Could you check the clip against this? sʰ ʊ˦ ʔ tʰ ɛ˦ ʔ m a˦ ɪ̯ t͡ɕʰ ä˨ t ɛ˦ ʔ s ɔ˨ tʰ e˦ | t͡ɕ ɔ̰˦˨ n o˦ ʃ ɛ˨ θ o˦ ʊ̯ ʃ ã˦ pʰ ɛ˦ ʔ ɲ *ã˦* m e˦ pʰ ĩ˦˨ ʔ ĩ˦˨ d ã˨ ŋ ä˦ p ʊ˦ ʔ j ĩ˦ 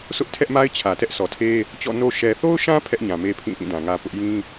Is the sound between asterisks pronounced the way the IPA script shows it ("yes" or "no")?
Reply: no